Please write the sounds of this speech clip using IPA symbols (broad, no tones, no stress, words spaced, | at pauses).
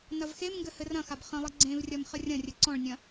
nɐvxemŋɡɘ hɘrɐ̃xab χə̃lˠi ɡ͡ǀẽvrʲɐm χərʲɐ̃rʲɘ ǀɔ̃ɭnʲɐ̃